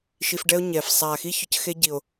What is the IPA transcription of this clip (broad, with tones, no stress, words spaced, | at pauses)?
ʃi˧fɖɛ˦o̯ ɲɛ˨f sˤa˨xi˦ çʊ˧cxe˦ɟi˨o̯